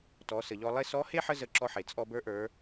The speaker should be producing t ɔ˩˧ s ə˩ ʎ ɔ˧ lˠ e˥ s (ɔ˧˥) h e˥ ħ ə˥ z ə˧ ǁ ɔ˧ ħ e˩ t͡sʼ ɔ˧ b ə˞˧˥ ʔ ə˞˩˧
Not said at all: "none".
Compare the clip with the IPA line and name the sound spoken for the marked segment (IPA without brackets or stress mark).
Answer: ɔ˧˥